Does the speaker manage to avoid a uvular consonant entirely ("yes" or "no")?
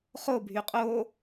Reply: no